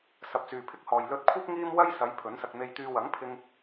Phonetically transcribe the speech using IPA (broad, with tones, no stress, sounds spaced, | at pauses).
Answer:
s ɐ˧ p̚ t͡s yː˨ pʰ ɪ˥ k̚ h ɔː˨ j l ɵ˧ t̚ kʷʰ ɐ˥ p̚ ŋ iː˥ m w ɐ˥ j s ɐ˨˧ j pʰ ɵ˨˥ n s ɐ˧ k̚ n̪ e˧ j t̪ yː˧ w ɐ˨˥ ŋ pʰ ɪ˧ ŋ